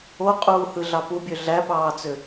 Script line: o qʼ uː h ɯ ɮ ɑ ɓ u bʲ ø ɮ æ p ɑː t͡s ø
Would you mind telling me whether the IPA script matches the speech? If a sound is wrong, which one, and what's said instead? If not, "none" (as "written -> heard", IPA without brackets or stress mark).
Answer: ɓ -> p